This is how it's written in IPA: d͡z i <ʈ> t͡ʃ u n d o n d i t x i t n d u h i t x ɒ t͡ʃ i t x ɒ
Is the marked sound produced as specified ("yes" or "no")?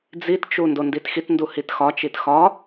no